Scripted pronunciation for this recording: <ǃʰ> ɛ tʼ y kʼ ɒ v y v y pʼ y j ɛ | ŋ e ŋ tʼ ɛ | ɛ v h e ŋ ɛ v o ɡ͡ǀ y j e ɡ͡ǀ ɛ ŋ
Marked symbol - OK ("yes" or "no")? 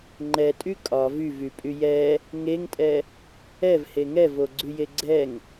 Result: no